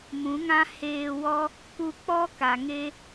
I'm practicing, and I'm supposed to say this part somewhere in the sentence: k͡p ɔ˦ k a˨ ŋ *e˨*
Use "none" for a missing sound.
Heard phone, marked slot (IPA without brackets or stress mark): e˧